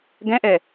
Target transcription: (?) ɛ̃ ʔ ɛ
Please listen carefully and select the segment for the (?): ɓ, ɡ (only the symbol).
ɡ